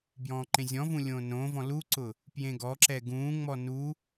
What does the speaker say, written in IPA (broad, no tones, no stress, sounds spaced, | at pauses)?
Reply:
b j ɔ̃ː ǃ ẽ zʲ ɔ̃ v ũ lʲ õː n õː v ɔ̃ l u ǀ ʊ | p j ẽ ɡ ɔ ǁ ɛ ɡ ũː ŋ͡m ɔ n u